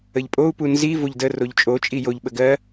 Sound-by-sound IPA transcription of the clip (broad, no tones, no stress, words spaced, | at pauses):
əʎpʼou̯ punzi voʎdə roʎt͡ʃʼo t͡ʃʼijoʎ ɓəɡɜ